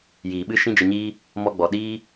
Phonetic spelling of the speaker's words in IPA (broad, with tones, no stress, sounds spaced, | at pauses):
j iː˨ ɓ ɨ˦ ʃ ĩ˦ d͡ʒ ə˧ ɲ iː˦ | m ɔ˧ ɡ͡b ɔ˨ ɗ iː˦